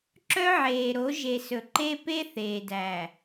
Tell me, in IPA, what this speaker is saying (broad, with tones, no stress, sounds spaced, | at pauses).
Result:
ǁ œ˦ ʕ eː˨ ɾ o˨˦ ʒ e˨ s ɵ˨ ǃ e˦ p e˦ θ eː˨ d æ˨